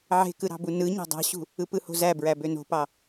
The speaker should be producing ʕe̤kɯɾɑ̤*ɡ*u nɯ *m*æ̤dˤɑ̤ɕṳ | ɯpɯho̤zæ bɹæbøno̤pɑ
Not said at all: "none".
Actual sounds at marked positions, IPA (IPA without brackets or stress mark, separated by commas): b, ɲ